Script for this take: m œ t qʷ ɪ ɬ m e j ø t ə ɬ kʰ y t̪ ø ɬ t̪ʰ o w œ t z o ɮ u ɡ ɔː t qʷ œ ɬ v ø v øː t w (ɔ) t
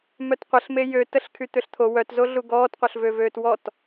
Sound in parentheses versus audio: correct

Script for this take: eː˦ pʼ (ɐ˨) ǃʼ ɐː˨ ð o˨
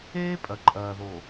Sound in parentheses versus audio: correct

